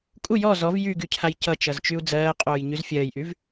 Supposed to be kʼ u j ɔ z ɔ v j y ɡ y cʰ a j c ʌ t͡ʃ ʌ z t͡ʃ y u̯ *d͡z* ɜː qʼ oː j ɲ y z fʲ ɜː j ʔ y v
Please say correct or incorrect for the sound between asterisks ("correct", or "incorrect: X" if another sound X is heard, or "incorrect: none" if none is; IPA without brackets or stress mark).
correct